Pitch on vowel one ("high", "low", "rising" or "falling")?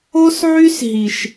high